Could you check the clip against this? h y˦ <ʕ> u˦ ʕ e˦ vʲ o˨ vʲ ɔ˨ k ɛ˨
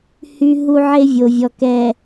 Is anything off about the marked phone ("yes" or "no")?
yes